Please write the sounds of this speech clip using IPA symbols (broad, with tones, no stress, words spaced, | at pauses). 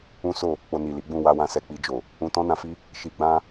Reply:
ũ˦so˦˨ | k͡po˧ni˨li˨˦ɡ͡bũ˦˨ wa˧wã˧ sɛ˨k͡pi˧d͡ʒo˨ | ũ˧tɔ̃˦nã˧fi˦ | ʃi˧ɡ͡bã˦